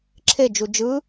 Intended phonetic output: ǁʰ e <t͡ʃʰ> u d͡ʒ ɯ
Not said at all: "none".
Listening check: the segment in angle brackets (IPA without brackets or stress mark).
d͡ʒ